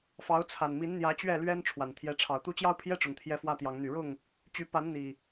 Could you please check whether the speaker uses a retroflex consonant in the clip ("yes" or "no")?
yes